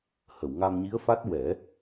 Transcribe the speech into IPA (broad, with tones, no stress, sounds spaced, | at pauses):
h ə˨˩˨ w ŋ a˧ m ɲ i˧˥ ə̯ f a˦˥ t̚ w ɛ˨˩˦